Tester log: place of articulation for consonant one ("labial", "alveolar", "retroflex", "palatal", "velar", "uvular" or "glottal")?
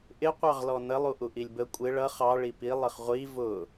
glottal